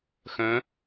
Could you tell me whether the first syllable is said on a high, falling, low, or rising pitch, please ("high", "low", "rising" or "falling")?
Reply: rising